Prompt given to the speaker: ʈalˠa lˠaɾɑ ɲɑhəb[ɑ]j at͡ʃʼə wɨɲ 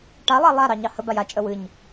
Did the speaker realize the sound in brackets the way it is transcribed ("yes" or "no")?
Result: no